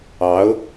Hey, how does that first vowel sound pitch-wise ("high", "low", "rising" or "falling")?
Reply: rising